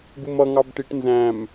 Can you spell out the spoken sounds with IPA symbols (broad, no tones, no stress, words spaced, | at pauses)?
ɡumʌ ŋɑbʈiʈ nzæ̃m